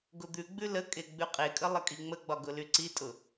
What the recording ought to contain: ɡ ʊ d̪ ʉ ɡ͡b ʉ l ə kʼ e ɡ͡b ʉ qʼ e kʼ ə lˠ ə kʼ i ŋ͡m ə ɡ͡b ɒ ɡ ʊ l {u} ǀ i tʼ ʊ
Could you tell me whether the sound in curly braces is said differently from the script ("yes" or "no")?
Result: yes